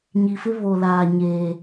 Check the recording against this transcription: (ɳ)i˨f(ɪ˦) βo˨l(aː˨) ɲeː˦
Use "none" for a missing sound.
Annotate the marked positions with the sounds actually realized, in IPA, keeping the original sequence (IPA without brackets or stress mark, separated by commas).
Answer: ɲ, ɪ˦, aː˨